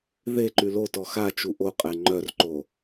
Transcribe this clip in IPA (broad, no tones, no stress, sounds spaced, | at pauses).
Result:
ð e ǃ y l o t ɔ x a t͡ʃ u ʔ o qʼ ɛ ŋ͡ǃ œ r ǃ o